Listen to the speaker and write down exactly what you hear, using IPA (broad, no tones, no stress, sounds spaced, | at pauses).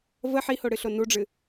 v ə ħ i h o ɽ ɨ ɬ o n u ɖ͡ʐ ɨ